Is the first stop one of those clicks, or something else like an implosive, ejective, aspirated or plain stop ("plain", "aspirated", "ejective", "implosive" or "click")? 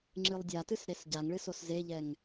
click